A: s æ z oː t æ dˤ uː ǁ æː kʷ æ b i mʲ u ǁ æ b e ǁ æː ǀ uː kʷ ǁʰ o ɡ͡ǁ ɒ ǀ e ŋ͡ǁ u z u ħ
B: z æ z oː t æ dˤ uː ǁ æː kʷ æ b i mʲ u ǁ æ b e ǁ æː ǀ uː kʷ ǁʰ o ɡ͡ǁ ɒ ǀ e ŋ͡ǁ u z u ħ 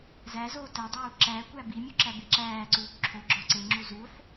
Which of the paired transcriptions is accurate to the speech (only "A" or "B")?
B